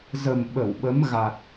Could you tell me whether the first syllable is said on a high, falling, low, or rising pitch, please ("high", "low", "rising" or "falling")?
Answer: low